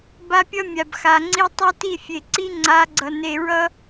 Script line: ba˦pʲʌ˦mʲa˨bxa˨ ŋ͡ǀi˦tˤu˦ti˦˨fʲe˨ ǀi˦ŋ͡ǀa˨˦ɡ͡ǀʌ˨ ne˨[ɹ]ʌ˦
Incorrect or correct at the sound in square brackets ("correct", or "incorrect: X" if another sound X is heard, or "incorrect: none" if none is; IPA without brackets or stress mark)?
correct